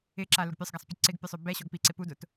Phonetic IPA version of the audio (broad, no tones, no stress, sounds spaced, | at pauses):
ɪ ǁ a l ʊ ɡ pʲ œ sˤ ɡ a sˤ pʲ ɐ ǀ ɪ ɡ pʲ ʊ sˤ ø b ɛ ɕ ɔ ɡ p i ǀ ɪ p u d ʊ t